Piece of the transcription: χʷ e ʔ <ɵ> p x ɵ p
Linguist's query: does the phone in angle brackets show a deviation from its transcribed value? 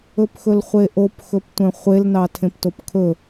yes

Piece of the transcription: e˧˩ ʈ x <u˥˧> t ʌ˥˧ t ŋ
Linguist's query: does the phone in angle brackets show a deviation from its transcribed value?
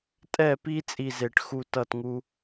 no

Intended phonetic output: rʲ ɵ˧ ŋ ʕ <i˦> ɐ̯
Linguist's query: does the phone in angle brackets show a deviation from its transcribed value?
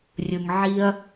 no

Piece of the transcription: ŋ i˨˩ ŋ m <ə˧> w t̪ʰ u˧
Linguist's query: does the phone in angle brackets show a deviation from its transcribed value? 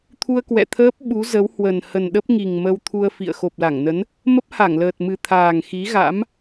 no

